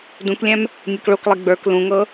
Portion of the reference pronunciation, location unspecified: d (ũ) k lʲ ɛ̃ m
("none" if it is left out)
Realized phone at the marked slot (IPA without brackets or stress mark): ũ